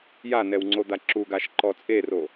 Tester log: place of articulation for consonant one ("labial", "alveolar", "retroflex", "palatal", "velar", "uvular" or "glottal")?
palatal